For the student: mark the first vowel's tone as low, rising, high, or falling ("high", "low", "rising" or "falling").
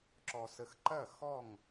low